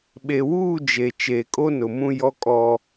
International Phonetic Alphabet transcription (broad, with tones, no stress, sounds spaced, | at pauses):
ɓ e˨ w uː˦˨ d͡ʒ e˨ t͡ʃ eː˨ kʼ o˦ n ʊ˨ m ũ˦ j ɔ˦ kʼ ɔ˦